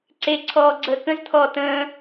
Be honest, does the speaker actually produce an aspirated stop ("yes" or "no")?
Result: yes